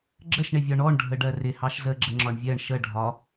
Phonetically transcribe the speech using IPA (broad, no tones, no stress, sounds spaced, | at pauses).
ɡ͡ǁ ə ʃ ɳ ɪ vʲ ɒ ɳ ɔ ɳ ɖʱ ə ɖ ɜ r ɪ h ɑ ʃ z ə ɡ͡ǁ ə ŋ͡ǁ ɒ ɳ vʲ ɜ ɳ ʃ ə ɖʱ ɒ